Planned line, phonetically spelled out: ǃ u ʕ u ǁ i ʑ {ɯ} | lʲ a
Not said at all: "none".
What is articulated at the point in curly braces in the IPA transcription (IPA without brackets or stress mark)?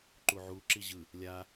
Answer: ɯ